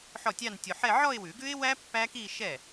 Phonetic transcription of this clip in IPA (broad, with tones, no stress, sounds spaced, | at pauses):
ħ ɔ˥˩ tʲ ɑ˥˧ n tʲ o˧ ħ ɛ˥˧ ʕ ɔ˥˧ ɪ̯ w ʉ˨˩˦ ɡ ʉ˦˥ ɪ̯ w æ˦˥ pː æ˦˥ k i˥˧ ʃ ɛ˥˩